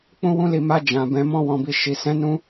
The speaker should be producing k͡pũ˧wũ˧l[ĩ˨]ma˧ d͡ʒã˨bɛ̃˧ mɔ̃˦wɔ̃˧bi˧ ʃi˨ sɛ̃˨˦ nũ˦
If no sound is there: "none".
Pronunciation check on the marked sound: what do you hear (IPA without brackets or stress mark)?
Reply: i˨